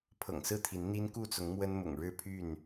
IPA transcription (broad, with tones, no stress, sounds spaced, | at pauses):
pʰ ɤ̰˨˩ ŋ s ɹ̩˥˨ t̪ʰ i˨˦ n n̪ i˦ n k u˥˨ t͡s ʊ˨˦ ŋ m w ə˦ n m ʊ̰˨˩ ŋ ɻ ɻ̩˥˨ pʰ y˥˨ n